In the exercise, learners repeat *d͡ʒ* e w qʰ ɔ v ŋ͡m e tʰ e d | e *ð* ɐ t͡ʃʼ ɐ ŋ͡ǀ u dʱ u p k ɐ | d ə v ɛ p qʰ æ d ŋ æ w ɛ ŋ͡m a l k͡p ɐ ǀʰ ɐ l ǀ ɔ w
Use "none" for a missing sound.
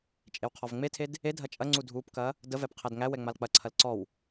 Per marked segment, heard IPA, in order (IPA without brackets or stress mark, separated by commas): t͡ʃʼ, dʱ